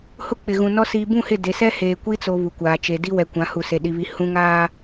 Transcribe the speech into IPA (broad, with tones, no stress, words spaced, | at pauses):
hʊ˦k͡pɪ˨ɣũ˨nɔ˦ siː˨bũ˦˨hɪ˦˨ de˨sɛ˦ heː˨kʷi˦ t͡so˨ βu˨kʷaː˨t͡ʃe˨ di˦wɛ˨kʷã˨˦ hu˨se˨ ɗi˨βi˨ hũ˨ŋaː˨